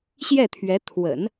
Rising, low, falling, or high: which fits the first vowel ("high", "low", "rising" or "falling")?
falling